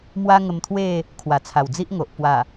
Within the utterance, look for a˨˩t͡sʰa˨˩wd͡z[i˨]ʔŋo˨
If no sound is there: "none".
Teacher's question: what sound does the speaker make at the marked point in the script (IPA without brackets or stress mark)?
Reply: i˦